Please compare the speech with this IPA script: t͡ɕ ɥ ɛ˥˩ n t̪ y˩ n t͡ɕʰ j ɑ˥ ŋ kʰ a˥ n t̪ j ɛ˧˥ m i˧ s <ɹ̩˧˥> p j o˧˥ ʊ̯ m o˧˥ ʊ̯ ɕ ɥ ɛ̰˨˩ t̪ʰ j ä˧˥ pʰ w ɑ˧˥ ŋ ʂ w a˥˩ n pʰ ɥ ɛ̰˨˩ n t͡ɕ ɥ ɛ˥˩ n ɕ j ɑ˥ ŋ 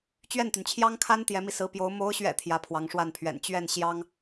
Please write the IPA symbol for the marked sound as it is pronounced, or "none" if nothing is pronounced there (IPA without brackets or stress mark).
ɹ̩˧˥